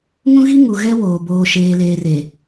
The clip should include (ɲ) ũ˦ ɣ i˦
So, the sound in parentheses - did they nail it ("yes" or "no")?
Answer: no